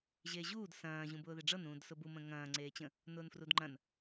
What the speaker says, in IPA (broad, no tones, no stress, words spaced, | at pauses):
ʑeʑuːd sɐ̃ː ʑũbʊːðeɖ͡ʐɤn ũːdsʊbu mə̃ŋɐ̃ː ŋ͡ǀeːt͡ɕə̃ | nʊːnfrudŋ͡ǃɐ̃n